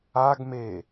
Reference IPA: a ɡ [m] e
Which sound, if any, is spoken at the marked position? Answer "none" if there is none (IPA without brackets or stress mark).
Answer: m